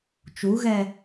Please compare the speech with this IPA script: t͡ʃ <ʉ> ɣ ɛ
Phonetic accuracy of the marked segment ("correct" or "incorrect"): incorrect